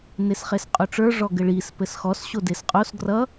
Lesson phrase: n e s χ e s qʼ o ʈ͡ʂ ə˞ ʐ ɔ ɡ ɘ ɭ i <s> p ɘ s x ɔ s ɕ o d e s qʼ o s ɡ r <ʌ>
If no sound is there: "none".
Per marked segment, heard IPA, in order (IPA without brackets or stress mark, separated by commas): s, ʌ